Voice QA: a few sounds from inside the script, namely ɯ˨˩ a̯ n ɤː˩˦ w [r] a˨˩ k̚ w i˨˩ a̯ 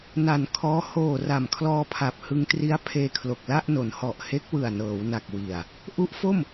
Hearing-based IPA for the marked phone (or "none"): n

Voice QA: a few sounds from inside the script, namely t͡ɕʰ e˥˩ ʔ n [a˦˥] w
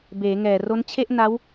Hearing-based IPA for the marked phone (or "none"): a˦˥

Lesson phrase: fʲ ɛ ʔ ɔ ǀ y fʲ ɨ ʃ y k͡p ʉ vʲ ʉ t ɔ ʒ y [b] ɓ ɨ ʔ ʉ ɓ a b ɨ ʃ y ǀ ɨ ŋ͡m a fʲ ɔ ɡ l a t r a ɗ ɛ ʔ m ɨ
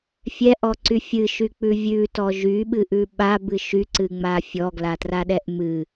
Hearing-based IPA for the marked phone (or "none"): none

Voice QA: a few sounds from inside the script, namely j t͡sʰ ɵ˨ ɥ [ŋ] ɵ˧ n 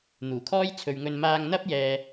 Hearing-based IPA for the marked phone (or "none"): ŋ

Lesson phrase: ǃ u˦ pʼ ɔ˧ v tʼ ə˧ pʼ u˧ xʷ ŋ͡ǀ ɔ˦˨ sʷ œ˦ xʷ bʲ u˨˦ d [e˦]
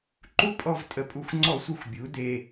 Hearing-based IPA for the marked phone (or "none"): e˧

